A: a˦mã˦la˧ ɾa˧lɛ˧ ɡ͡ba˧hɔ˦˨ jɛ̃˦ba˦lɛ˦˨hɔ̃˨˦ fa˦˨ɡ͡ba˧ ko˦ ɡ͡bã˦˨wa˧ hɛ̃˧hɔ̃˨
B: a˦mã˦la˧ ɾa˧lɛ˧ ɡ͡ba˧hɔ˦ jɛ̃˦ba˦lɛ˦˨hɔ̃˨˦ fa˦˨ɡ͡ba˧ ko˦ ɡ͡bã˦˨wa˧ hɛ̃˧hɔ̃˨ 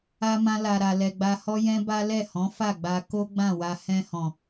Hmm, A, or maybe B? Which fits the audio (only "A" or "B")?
B